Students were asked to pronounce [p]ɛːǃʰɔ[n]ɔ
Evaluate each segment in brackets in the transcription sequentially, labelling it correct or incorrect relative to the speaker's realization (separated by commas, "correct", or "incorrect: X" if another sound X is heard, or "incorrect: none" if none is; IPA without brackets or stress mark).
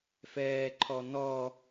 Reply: incorrect: f, correct